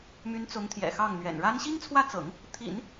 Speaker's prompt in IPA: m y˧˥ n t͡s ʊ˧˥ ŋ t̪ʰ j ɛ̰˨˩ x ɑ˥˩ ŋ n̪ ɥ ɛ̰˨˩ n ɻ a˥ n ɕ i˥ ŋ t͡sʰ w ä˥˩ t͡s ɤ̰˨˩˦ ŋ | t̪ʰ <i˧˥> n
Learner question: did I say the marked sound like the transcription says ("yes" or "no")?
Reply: no